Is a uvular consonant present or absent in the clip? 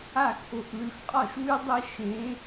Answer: present